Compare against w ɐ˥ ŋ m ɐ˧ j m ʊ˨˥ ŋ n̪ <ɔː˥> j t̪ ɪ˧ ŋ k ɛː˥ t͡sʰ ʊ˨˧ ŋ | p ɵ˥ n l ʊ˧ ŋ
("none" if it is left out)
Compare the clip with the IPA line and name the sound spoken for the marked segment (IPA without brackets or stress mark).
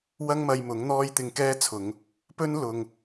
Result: ɔː˥